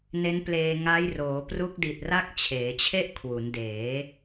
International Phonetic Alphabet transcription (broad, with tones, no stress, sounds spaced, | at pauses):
n e˦˥ n p l eː˧ ŋ a˦˥ j r oː˩˦ p r u˦˥ k̚ d i˨˩ t̚ r a˥˩ k̚ t͡ɕʰ eː˩˦ t͡ɕʰ e˥˩ ʔ kʰ w u˩˦ n d eː˩˦